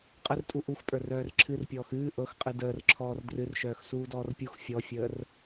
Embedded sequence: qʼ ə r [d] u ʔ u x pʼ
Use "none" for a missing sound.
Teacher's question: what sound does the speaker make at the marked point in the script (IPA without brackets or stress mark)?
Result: tʼ